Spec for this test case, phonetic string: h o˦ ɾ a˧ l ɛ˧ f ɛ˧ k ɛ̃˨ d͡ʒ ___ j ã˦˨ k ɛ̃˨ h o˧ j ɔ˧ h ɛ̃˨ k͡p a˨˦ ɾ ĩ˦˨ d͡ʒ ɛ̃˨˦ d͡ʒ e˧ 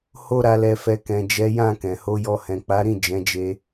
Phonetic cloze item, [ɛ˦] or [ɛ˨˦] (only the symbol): ɛ˨˦